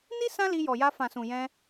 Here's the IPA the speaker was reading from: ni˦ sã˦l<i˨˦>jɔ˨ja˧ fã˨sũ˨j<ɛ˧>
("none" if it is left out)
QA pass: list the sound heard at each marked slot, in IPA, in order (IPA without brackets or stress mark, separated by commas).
i˧, ɛ̃˧